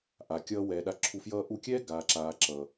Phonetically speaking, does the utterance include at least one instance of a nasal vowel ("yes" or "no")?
no